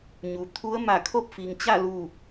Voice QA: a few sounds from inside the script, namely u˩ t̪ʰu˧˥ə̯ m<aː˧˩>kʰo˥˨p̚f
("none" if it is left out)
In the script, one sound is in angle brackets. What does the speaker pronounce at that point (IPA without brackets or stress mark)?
a˧˩